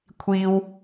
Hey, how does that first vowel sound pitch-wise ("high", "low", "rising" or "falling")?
high